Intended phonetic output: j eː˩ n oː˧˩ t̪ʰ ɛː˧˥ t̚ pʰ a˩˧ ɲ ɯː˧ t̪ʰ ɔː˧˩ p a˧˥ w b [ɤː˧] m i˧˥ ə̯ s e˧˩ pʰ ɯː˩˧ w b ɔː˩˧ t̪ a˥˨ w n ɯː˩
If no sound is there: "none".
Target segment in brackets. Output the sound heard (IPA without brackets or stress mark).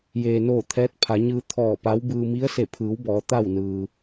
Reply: ɯː˧